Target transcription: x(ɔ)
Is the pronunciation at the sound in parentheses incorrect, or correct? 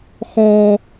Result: correct